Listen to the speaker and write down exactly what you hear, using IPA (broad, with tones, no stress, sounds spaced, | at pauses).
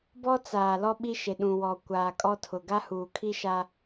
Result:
b ɔ˦ t͡s aː˨ l ɔ˦ ɓ i˦ ʃ e˨ ɗ ũ˨ w ɔ˨ kʷ aː˨ kʼ ɔ˦ tʰ ʊ˨ ɡ a˦ h uː˨ kʰ i˦ ʃ a˦